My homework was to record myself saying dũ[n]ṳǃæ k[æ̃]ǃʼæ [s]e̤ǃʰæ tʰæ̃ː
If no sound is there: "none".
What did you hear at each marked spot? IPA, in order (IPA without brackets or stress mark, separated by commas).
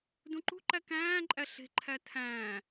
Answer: ǃ, æ̃ː, ɬ